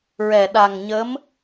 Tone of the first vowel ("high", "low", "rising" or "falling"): low